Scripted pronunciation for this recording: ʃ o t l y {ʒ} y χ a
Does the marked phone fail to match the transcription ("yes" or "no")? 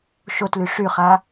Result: yes